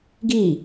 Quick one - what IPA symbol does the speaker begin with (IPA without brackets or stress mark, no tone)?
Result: ɡ